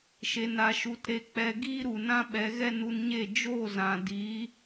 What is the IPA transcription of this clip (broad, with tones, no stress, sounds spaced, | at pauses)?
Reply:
ʃ e˧ n a˧ ʃ u˧ t ɾ e˧ k͡p ɛ˧ ɡ iː˦ ɾ u˨ n ã˦ ɓ ɛ˨˦ ɣ ɛ˦ n u˧ n ɲ e˦˨ d͡ʒ o˦˨ z ã˨ d iː˨˦